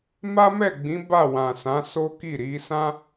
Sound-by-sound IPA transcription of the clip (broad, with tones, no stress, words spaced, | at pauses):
ma˦mɛ˦˨ɡ͡bĩ˨˦ ba˦˨wã˨sã˨˦so˦ ki˦˨ɾi˨˦ sã˦